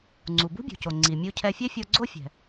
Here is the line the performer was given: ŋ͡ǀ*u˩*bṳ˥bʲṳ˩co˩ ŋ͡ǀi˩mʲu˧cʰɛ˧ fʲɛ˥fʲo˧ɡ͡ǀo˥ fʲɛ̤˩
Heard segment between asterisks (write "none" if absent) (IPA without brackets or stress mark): u˩